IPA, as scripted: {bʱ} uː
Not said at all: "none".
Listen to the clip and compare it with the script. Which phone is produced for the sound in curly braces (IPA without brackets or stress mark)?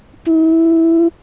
p